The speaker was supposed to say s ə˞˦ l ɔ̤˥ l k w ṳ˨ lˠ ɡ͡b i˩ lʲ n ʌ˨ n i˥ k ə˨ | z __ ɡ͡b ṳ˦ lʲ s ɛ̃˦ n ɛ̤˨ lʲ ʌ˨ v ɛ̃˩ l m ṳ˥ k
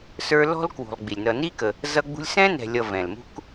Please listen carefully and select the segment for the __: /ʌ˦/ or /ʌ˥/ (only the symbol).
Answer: ʌ˦